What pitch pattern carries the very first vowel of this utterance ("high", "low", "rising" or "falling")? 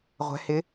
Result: rising